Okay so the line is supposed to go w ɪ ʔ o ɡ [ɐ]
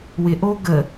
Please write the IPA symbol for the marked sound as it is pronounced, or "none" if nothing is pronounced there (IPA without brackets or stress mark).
ə